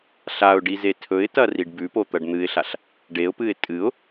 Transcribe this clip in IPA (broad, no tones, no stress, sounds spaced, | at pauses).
ɬ a ʊ̯ ɖ i z e tʰ ɵ ɪ̯ t ɐ r i ɖ b ʉ p o t̪ ɐ ɖ n̪ ɨ ɪ̯ ɬ a ɬ | ɖ e ʊ̯ p ɨ ɪ̯ tʼ ɨ ʊ̯